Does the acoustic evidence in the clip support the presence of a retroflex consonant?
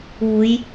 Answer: no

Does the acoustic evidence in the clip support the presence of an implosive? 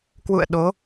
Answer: yes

